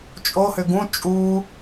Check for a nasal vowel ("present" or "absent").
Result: present